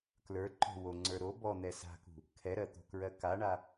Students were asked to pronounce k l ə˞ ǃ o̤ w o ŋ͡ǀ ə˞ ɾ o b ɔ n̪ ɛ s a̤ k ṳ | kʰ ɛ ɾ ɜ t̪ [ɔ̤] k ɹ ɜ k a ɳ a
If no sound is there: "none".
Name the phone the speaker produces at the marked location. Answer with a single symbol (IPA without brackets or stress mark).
o̤